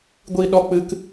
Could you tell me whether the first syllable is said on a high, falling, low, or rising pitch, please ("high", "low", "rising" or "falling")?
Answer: high